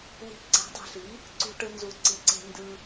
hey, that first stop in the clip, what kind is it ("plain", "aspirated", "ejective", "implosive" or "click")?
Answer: click